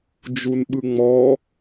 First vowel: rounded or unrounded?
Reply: rounded